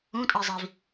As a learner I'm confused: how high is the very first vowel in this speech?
high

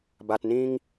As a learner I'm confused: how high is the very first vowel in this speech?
low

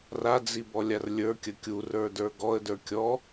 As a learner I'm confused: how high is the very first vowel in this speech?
low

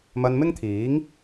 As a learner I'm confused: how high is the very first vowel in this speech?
low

